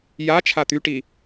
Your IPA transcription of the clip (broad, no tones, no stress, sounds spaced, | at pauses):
j a t͡ʃʰ a t̪ y ʈ i